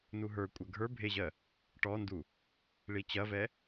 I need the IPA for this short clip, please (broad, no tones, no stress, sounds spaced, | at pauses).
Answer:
n u ɦ ə˞ kʷʼ ɐ ɡʱ ə˞ bʱ e ʑ ɜ | ʈ ɔ n d u | ɭ i t͡ɕ ɐ v ɛ